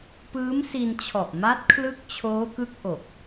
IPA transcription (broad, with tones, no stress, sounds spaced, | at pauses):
p ɯː˦˥ m s i˧ n t͡ɕʰ ɔ˨˩ ʔ m a˦˥ t̚ kʰ l ɯ˦˥ k̚ t͡ɕʰ oː˦˥ k ɯ˦˥ k̚ ʔ o˨˩ k̚